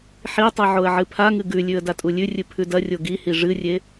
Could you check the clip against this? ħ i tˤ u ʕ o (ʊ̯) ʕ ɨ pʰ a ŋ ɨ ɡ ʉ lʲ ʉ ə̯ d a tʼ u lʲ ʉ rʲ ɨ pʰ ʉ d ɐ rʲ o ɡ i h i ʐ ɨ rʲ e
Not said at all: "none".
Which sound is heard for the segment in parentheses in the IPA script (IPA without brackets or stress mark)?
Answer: ə̯